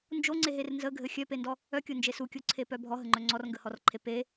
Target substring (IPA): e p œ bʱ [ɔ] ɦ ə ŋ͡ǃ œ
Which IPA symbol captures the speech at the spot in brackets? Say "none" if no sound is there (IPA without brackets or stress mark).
ɔ